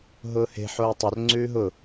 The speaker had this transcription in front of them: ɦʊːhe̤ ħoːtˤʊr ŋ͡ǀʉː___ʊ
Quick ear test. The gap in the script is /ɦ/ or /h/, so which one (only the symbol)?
ɦ